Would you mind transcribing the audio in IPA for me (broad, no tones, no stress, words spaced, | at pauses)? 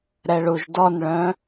ɾɛɭuʒdɔnɭœ̃